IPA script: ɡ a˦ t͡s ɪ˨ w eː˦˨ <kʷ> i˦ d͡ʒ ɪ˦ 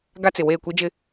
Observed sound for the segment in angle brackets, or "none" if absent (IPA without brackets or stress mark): kʷ